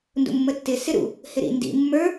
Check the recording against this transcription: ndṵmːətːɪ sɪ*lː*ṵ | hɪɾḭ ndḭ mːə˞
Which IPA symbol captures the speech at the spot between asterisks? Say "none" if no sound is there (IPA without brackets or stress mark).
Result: ɾ